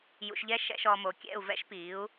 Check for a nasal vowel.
absent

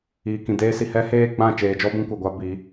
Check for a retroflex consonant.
absent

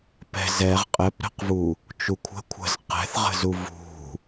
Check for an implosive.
absent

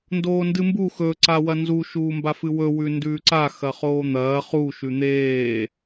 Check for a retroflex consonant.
absent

